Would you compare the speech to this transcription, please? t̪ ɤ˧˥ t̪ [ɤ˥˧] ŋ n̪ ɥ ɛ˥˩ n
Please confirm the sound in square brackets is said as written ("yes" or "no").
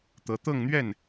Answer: yes